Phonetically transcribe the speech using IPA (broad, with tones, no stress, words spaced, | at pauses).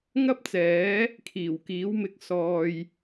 ŋɐ˥p̚t͡sɛː˨˥ | kʰiː˨˩wkiː˨˥wmɪ˧k̚ sɔː˧j